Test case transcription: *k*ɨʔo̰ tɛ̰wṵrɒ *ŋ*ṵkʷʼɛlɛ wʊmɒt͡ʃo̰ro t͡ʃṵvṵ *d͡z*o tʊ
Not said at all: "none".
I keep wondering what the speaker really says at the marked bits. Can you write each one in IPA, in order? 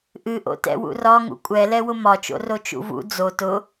ʔ, ŋ, d͡z

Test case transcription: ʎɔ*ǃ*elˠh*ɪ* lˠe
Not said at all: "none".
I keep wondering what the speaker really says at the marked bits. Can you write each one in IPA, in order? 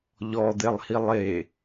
d̪, i

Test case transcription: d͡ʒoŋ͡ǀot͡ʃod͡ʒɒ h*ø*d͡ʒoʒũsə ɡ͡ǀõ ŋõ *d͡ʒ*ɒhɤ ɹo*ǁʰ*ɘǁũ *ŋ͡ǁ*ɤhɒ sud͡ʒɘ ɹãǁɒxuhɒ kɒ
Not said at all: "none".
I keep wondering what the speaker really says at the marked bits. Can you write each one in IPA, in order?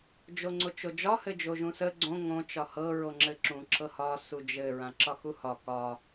ɘ, t͡ʃ, ŋ͡ǁ, ǁ

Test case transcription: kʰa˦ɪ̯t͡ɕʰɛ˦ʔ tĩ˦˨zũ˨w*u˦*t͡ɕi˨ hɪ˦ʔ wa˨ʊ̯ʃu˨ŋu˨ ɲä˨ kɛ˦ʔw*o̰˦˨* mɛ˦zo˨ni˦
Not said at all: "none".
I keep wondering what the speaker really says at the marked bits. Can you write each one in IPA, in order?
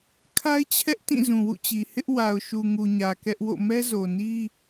ṵ˦˨, o̰˦˨

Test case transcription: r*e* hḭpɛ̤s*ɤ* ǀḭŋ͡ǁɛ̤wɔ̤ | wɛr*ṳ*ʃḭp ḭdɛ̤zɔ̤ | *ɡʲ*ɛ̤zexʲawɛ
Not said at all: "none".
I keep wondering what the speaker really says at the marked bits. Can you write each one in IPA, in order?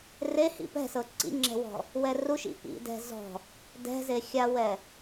e, ɤ, u, d

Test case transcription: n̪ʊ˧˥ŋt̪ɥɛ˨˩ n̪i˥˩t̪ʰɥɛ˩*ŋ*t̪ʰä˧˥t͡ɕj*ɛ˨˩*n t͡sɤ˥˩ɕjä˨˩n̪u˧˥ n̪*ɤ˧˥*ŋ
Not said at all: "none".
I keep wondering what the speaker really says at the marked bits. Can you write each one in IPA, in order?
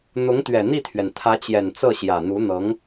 n, ɛ˨˩, ɤ˧˥

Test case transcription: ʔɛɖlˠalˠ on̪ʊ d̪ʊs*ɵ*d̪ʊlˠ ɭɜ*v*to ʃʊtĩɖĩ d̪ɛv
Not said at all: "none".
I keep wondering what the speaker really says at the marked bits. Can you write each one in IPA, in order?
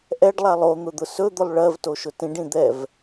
ɵ, v

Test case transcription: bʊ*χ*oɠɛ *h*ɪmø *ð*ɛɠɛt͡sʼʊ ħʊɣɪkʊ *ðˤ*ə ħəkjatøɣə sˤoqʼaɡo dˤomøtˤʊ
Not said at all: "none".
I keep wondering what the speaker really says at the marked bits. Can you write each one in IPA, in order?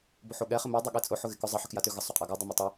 ħ, χ, dˤ, zˤ

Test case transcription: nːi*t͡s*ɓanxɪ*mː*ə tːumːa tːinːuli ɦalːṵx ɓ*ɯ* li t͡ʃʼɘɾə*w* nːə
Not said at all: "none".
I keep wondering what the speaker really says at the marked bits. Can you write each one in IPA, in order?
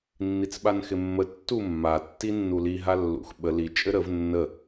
t͡s, mː, ə, v

